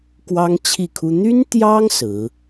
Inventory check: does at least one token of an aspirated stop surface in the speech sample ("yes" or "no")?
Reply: yes